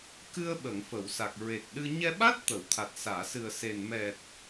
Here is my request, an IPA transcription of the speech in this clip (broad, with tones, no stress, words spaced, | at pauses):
kɨ˧ə̯ ɓə˨˩˨ŋ fə˨˩˨wsa˨˩k̚ ɹe˨˩k̚ɗɨ˧ ɲɛ˧ɓa˦˥t̚ t̪ə˨˩˨wt̪ʰa˨˩t̚saː˨˩˨ sɨ˨˩ə̯se˨˩n mɛ˨˩t̚